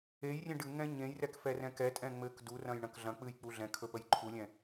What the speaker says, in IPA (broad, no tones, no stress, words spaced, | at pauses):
ejrʲẽ ɖɨŋɛ̃ ɲẽjrɛk fɛrɛ̃kɛtʼɛ̃ ŋ͡mɘk durɐ̃j ɳɐ̃kɮɐ̃k͡pɨj k͡puɮɛ̃kʰɵ pəjǃʰulʲɛ̃